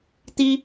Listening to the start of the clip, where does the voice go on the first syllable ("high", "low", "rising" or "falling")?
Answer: high